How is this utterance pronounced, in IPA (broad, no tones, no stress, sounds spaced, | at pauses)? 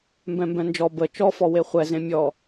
m b ɛ̃ m b ɛ̃ n d͡ʒ ɔ b ə t͡ʃ ɔ f ɔ w e χʷ ɛ z ẽ mʲ ɔ